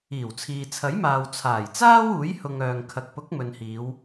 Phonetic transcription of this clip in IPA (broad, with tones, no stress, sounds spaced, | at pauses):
iː˨˩ w t͡sʰ iː˨ t͡sʰ ɐ˨˥ j m aː˨ w t͡sʰ aː˨˩ j t͡s aː˥ w uː˨˥ j h ʊ˨ ŋ œː˨ ŋ kʰ ɐ˨ k̚ p ʊ˨˥ k̚ m ɵ˨ n h iː˨˧ w